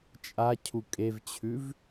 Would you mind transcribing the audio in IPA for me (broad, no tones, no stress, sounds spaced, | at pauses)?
t͡ʃʼ a cʰ u kʼ e v t͡ɕʰ ʉ v